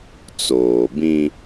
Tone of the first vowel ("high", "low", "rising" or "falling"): low